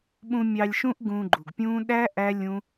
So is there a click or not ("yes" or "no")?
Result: yes